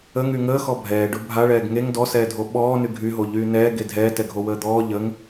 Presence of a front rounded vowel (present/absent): present